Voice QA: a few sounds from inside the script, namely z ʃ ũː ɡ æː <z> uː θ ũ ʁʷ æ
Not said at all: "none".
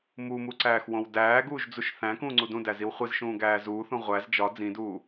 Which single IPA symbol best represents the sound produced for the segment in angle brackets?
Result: z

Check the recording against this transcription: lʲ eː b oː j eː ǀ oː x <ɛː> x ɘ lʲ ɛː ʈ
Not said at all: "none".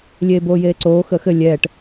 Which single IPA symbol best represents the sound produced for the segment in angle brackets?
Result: əː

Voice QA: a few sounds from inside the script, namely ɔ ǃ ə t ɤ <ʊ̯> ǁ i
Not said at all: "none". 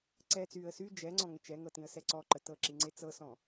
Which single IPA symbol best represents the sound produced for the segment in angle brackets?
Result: ə̯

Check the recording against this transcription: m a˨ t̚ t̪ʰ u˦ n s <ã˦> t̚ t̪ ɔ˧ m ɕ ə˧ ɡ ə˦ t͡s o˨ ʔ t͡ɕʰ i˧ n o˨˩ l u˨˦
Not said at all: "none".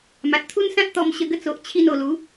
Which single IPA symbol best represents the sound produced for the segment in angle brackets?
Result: ã˦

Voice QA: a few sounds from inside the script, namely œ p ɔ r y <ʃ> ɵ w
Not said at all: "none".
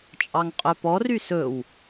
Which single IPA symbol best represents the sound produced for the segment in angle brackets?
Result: s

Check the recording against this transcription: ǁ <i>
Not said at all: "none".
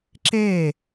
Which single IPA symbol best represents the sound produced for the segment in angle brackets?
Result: e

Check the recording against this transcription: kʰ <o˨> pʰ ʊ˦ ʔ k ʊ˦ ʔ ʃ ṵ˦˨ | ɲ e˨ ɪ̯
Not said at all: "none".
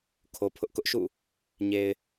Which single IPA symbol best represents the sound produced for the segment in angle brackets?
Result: o˨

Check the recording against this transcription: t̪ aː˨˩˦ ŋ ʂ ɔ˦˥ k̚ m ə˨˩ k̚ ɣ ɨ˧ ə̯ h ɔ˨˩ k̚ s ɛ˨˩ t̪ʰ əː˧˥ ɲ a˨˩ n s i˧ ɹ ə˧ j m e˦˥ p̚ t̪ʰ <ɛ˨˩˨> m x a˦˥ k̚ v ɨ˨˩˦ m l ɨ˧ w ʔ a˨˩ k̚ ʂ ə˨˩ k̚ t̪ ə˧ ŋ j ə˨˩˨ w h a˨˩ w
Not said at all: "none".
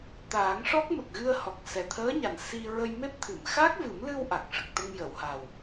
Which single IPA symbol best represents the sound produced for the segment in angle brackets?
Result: ɨ˨˩˨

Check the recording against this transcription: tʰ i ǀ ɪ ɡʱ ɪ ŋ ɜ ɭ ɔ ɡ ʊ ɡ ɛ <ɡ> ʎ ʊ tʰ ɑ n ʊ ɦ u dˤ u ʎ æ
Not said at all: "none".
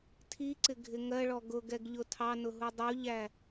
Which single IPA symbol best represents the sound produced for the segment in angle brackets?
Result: ɡ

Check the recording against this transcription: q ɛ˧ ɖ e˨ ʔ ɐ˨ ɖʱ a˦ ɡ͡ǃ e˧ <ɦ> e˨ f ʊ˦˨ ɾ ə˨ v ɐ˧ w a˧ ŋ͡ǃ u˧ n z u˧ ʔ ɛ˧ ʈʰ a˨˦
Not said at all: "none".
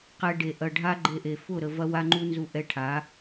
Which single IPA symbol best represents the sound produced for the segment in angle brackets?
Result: ʔ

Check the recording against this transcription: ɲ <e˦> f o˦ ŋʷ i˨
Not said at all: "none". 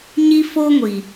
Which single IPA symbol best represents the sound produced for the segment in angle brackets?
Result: i˦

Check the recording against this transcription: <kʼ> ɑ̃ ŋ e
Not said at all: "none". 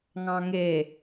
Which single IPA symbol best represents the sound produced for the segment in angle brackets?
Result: ŋ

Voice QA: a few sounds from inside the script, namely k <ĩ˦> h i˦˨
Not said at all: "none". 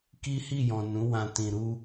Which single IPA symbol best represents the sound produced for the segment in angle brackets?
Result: i˦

